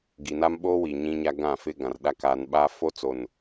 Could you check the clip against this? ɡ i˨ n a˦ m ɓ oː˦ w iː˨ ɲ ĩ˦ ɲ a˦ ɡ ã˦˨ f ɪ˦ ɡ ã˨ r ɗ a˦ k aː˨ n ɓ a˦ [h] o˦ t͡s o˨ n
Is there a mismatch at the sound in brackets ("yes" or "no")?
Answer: yes